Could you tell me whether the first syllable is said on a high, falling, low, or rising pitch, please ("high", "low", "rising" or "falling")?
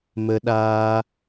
high